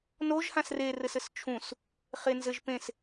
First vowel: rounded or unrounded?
rounded